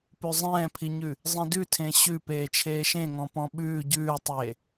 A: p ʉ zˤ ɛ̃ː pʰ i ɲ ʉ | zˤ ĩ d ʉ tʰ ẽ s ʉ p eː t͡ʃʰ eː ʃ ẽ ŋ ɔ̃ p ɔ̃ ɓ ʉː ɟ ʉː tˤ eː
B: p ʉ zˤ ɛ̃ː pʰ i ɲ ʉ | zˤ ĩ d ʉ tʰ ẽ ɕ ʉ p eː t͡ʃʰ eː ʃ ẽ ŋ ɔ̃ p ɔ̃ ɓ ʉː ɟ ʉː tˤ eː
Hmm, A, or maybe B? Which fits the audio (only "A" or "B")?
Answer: B